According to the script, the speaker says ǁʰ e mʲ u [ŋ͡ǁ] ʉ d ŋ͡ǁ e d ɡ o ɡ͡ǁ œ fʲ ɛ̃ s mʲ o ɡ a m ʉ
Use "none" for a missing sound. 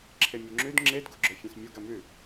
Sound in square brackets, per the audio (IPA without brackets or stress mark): ŋ͡ǁ